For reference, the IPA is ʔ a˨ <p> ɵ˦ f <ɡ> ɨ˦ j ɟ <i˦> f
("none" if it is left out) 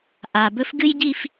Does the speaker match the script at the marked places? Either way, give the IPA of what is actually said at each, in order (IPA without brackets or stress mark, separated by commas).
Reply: b, ɡ, i˦